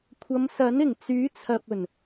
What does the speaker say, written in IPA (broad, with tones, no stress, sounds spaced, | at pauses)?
kʷʰ ɐ˨˧ m s ɐ˨˥ n ɪ˨˩ ŋ t͡s yː˨˥ t͡sʰ ɐ˨ p̚ ɵ˨˩ n